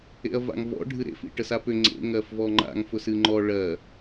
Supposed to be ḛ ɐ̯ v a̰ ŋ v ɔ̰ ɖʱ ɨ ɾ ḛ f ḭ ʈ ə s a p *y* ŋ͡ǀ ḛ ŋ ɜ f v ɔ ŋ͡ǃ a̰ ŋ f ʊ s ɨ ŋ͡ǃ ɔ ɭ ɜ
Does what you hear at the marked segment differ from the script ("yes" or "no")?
yes